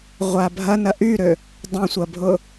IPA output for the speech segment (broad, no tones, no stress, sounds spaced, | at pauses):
ʁʷ a bʱ ɐ n ɐ ʔ y ɾ ø | dˤ ã sʷ ɐ bʱ ʊ